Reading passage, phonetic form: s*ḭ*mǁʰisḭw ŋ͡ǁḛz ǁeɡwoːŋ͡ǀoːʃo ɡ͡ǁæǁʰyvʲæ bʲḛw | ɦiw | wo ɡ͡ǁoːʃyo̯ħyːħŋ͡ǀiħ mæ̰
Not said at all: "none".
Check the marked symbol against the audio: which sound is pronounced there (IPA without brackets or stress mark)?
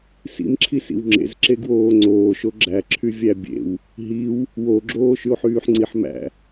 ḭ